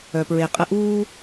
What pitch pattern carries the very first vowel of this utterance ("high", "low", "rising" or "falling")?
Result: low